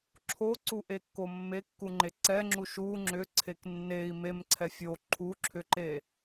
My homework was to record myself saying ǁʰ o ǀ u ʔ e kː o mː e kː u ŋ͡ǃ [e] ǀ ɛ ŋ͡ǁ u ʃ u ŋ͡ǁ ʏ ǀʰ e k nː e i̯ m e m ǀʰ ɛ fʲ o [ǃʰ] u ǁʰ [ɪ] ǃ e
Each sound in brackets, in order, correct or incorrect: correct, correct, incorrect: ʏ

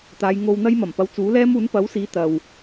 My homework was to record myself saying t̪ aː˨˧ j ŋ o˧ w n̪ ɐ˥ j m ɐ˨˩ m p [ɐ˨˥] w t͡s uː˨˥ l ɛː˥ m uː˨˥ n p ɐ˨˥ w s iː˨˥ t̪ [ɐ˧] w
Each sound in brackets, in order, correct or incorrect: correct, incorrect: ɐ˨

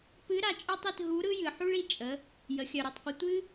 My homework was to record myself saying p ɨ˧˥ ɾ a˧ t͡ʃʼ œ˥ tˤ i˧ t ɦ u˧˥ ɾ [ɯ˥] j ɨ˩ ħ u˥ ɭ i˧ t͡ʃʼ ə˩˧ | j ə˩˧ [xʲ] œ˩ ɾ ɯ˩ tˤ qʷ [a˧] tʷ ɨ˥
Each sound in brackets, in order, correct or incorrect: correct, correct, incorrect: ə˧

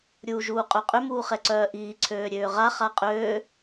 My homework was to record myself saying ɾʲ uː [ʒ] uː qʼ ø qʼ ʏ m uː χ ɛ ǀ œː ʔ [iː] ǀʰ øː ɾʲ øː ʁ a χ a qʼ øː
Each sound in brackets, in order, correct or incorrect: correct, correct

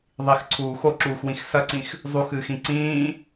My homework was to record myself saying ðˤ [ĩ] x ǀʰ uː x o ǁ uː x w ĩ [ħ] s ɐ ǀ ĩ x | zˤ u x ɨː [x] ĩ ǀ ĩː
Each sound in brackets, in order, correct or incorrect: incorrect: i, incorrect: x, correct

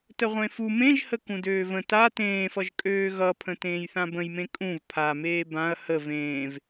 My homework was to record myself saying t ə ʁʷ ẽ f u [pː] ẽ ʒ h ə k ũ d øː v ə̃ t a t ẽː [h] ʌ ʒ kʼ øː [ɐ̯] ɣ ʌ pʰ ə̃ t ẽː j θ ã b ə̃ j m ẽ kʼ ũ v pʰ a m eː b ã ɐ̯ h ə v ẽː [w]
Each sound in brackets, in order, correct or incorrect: incorrect: m, incorrect: f, incorrect: none, incorrect: v

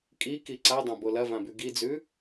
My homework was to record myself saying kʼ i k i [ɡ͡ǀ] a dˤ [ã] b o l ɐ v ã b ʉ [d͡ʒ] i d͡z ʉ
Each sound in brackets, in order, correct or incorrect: incorrect: ǀ, correct, incorrect: ɡ

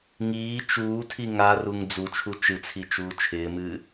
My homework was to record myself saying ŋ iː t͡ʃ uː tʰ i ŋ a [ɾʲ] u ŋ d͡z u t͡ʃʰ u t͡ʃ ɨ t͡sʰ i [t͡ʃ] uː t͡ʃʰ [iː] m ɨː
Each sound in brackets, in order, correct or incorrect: incorrect: r, correct, incorrect: ɪː

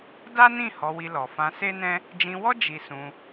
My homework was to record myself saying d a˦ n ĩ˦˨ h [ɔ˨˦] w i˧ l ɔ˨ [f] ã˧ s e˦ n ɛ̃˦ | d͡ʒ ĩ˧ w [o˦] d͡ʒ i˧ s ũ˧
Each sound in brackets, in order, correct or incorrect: correct, correct, incorrect: ɔ˦

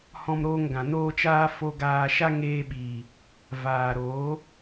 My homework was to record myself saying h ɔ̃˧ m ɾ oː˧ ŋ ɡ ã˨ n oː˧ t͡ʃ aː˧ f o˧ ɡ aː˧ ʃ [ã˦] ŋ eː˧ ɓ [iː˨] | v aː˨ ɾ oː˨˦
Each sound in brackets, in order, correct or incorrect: incorrect: a˦, correct

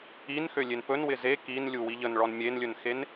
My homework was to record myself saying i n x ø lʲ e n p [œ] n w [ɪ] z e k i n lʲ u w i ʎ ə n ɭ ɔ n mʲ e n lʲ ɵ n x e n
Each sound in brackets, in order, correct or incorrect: incorrect: ɵ, correct

